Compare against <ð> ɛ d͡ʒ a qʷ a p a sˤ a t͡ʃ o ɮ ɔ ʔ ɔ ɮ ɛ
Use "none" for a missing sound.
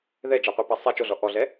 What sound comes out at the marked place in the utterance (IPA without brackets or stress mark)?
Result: ð